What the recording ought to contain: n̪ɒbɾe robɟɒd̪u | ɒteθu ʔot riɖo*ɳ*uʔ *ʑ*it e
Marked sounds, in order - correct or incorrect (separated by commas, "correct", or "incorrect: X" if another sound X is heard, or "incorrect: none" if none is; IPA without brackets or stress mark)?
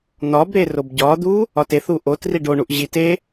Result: correct, correct